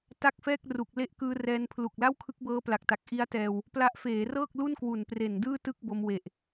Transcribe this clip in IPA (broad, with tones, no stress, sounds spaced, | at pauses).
t a˥˩ k̚ f ɛː˥˩ k̚ r u˨˩ k̚ l e˦˥ ʔ k ɯː˧ r ɛː˧ n pʰ l u˨˩ k̚ l a˥˩ w kʰ ɯ˦˥ k̚ b ɤː˦˥ p l a˨˩ k̚ t a˨˩ k̚ ʔ i˦˥ a̯ t ɛː˧ w | p l a˦˥ ʔ f eː˩˦ r ɤː˥˩ k̚ l u˥˩ n k w u˨˩ n p r e˨˩ n d ɯː˥˩ t ɯ˥˩ k̚ b o˧ m w e˨˩ ʔ